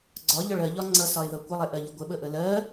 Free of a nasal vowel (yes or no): yes